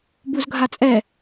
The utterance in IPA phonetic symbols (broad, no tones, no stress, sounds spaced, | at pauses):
b u z ɡʱ a t͡sʼ ɛ